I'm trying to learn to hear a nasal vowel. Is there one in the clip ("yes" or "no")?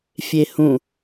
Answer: yes